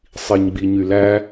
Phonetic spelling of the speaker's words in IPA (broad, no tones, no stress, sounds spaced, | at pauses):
sˤ i ɲ ɡ͡b i ɲ y l æ